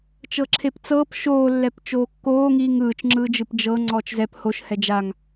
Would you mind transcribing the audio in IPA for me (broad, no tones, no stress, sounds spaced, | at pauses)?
t͡ʃ ɤ ǁʰ e p t͡s ɤː p ʃ oː lː ɛ p t͡ʃ oː kː oː ŋ iː ŋ ɯː t͡ʃ ŋ͡ǁ ɯː d͡ʒ ɯ p d͡ʒ ɤ ŋ͡ǀ ɔː t͡ʃ z ɛ p h o ʃ h ɛ d͡ʒ a ŋ